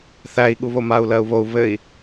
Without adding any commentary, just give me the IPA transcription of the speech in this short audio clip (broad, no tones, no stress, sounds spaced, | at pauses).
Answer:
θ æ i̯ ɠ u β o m a u̯ l ɜ u̯ β o u̯ β ɘ i̯